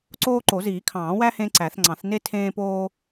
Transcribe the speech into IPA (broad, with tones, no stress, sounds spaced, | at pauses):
ǀ oː˥ ǃ o˨˩˦ z iː˨˩˦ kʰ ɑ̃ː˨˩˦ w æ˥ h ẽː˥ ǀ æ˨˩˦ θ ŋ͡ǀ ɑ̃˨˩˦ θ n e˥ tʰ ẽː˥ p oː˥